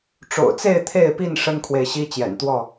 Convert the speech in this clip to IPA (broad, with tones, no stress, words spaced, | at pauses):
ʈ͡ʂo̰˨˩ʊ̯t͡se˥˨ɪ̯ t̪ʰe˥˨ɪ̯pi˥˨n ʂə˦nkʰwe˨ɪ̯ɕi˦ t͡ɕjɛ̰˨˩nt̪wɔ˥˨